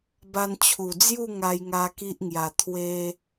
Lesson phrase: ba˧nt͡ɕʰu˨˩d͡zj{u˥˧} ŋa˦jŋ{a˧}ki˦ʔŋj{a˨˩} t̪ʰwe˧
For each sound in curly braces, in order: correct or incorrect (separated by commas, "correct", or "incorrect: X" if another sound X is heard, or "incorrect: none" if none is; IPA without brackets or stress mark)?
correct, incorrect: a˦, correct